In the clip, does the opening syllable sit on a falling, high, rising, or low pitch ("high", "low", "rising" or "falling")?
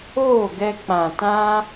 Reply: falling